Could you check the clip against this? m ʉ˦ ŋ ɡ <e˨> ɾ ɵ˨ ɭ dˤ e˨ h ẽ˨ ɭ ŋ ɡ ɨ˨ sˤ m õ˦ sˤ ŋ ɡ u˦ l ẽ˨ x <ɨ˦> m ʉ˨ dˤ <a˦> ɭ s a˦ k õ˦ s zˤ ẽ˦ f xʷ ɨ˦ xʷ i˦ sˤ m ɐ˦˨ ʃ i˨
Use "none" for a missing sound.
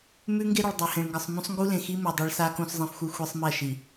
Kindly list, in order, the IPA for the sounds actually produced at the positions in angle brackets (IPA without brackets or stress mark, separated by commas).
e˦, i˦, a˦